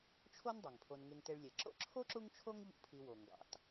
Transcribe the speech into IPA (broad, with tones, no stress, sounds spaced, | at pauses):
t͡ʃʰ o˥ n dˤ e˩ ŋ pʰ o˨ n ŋ e˨ ŋ t e˨ ɭ lʲ e˩ ǁ o̰˥ ǁʰ o˥ ǁ u˦ ŋ t͡ʃʰ o˦ ŋ ʎ ṵ˦ pʰ i˨ w o˩ ŋ ɡ ɑ̰˩ t